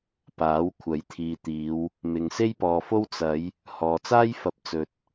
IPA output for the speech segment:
p aː˨˥ w kʷʰ ɐ˨˥ j t̪ʰ iː˨ t̪ iː˨˧ w | m ɪ˨ ŋ s e˥ j p ɔː˨ f o˥ w t͡s ɐ˨˧ j | h ɔː˨ t͡s aː˥ j f ɐ˨˥ p̚ t͡s ɵ˨ t̚

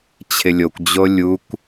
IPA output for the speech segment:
t͡ɕʰ ɪ lʲ o kʷ d͡ʑ o lʲ u kʷ

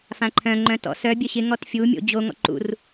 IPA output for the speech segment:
f ã ǃʰ œ̃ ŋ͡ǃ œ̃ t ɔ̰ s œ bʲ œ ɕ ɪ ŋ ɔ t fʲ u mʲ o̰ d͡ʑ o ŋ ɔ̰ ǃ ṵ r

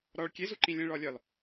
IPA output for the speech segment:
ɾ ɒ ɭ kʲ e z u ǃ ĩ lʲ ẽ ɭ ɒ lʲ ɒ l

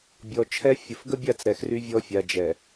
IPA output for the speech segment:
bʲ ɔ˨ t͡ʃʰ ɛ˦ fʲ ə˨ f ɡ ə˦ bʲ a˦˨ t͡s ɾ ɛ˨ x r y˦ vʲ ɔ˦ fʲ a˨ d͡ʒ ɛ˨

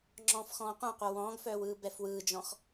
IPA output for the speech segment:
ŋ͡ǁ ɔ̃ː f x ɔ̃ː qʷ ɛ̃ qʷ œ w ɔ̃ː ɡ f œː w ɯː b ɛ f w ɯː d͡ʒ ɔ̃ x

